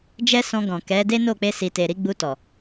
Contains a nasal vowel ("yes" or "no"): yes